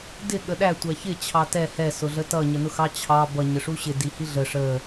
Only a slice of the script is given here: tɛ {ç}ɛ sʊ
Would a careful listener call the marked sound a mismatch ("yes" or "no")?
yes